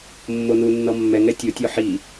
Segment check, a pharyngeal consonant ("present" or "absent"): present